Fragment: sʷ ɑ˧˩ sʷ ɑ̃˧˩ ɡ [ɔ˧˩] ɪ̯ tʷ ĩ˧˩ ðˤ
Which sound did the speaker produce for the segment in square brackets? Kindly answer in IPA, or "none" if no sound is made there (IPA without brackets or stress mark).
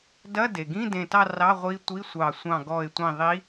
ɔ˧˩